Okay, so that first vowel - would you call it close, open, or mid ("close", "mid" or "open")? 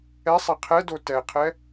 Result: mid